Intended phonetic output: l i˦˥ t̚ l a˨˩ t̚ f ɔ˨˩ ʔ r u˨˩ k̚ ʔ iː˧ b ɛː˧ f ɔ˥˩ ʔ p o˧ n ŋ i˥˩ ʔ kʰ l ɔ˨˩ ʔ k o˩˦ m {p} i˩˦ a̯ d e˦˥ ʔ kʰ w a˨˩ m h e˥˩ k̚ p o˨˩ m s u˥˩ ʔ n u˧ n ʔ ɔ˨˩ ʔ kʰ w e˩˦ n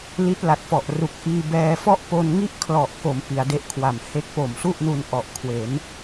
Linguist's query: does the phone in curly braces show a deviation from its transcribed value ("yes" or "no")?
no